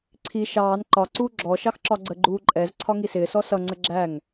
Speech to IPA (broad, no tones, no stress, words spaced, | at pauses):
ǀʰi ʃɑːn ǃɒǀuː ɡ͡ǁɔʃɑx ǁɒɡ͡ǀəɡ͡ǃuː ǃʼɛz ǀʰɒŋisɪːsɔ sʌŋ͡ǀə ɡ͡ǁæŋ